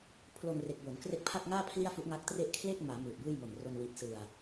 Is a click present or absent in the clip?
absent